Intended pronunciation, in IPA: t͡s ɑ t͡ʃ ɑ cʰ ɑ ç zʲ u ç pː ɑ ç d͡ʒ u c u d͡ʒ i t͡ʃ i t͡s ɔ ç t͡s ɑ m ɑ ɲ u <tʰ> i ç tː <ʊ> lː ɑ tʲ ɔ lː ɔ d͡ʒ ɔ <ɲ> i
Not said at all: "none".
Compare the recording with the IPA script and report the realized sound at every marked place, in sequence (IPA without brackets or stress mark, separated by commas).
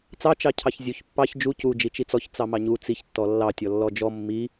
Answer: t͡s, ɔ, mː